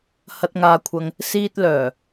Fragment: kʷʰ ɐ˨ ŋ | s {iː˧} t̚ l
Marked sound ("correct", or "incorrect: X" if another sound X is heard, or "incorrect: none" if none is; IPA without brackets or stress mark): correct